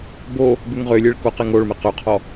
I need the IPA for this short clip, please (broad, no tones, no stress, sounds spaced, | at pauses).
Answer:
b o | b ʉ ŋ ʁ ø lʲ e ɭ k o q e ŋ o ɭ m e q ø qʰ ɔ